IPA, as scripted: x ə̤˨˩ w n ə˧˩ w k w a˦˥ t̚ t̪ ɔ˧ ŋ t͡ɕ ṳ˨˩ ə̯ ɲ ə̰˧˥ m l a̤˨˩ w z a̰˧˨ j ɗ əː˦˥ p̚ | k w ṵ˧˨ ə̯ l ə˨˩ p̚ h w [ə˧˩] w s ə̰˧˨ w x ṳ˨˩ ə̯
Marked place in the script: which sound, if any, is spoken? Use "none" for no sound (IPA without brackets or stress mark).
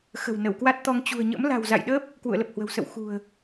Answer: ə̤˨˩